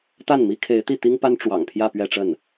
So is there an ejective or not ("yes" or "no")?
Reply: no